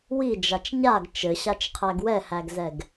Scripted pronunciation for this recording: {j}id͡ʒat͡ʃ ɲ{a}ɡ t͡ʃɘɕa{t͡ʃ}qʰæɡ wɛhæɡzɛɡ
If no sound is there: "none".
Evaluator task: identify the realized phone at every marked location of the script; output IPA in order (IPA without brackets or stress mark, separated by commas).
w, a, t͡ʃ